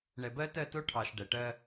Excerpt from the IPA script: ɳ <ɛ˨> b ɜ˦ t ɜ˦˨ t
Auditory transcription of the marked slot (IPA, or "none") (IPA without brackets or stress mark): ɛ˨